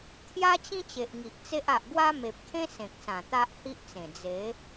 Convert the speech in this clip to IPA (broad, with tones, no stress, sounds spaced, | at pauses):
t̪ʰ j a˦ t͡ɕ ĩ˦ t͡ɕ e˨ ʔ ŋ i˨ ʔ t͡s e˦ ʔ a˨ ʔ ɡ w a˦ m e˨ p̚ kʰ ẽ˦ s ẽ˨ k̚ s ã˨˩ t̪ a˦ ʔ h i˦ ʔ t͡s ẽ˨˩ d͡z e˨˦